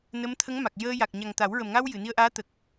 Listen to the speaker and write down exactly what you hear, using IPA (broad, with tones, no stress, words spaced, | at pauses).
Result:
nə˧˥mt̪ʰə˧˥ŋma˨˩k̚ jəː˧ ja˨˩k̚ɲa˨˩ŋ t̪a˨˩˦wɹə˨˩mŋa˧w jɨ˨˩˨ni˧ə̯ʔaː˧˥t̪ə˨˩k̚